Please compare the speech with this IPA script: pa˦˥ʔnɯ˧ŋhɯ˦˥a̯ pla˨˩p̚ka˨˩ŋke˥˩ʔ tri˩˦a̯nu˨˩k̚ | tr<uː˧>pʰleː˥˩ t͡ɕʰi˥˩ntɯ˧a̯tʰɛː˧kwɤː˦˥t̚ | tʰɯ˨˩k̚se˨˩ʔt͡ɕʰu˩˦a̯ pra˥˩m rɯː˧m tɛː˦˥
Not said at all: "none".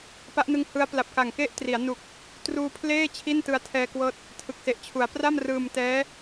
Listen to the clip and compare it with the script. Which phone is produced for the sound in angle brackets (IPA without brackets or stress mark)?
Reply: uː˧